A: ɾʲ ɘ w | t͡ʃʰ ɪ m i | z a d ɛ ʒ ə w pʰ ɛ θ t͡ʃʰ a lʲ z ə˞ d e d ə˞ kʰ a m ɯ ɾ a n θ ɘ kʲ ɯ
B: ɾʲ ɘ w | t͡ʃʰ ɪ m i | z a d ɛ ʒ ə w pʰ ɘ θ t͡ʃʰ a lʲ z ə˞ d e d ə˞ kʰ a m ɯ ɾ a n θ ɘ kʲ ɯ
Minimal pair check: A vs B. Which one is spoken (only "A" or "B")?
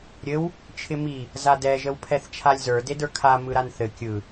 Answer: A